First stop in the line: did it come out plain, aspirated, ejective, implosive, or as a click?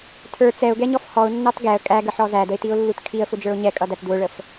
aspirated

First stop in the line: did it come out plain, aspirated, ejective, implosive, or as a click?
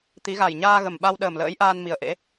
plain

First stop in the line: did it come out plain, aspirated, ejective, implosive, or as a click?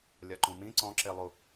click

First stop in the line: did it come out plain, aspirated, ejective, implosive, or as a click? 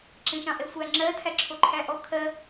click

